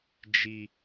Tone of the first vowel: low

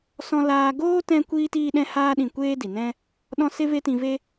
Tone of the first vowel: high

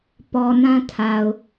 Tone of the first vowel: low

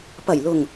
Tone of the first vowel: low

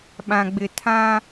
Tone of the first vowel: low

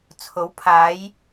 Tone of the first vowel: rising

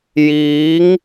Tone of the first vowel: rising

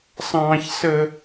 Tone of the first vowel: high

